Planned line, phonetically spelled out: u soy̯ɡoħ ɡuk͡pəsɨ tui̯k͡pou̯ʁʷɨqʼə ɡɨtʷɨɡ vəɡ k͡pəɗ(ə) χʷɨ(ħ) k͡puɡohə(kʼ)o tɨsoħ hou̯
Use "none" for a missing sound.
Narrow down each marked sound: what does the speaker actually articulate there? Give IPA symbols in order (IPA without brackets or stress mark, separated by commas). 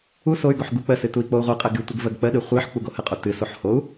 ɨ, ħ, qʼ